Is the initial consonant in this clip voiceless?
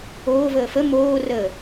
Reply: no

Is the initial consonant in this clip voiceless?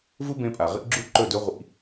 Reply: no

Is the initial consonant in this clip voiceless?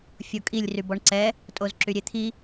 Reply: yes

